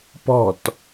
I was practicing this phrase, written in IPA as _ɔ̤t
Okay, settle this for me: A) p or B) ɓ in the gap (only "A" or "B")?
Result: A